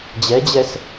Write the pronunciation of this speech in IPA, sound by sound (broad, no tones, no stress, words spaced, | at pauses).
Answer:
d͡ʑɛd͡ʑɛs